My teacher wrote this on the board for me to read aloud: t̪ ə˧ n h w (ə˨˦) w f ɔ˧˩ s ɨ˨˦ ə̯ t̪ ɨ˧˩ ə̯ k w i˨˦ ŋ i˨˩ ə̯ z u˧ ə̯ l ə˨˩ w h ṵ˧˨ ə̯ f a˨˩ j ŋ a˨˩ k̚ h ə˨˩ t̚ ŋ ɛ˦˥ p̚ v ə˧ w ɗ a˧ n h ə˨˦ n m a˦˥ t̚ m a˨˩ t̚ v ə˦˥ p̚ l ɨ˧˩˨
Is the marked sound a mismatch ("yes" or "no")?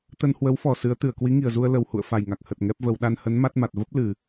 no